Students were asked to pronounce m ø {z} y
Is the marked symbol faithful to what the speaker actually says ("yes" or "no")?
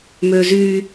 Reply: yes